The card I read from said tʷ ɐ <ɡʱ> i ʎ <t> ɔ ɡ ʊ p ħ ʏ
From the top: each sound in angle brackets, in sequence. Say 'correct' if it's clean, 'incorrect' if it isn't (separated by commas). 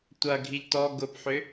correct, correct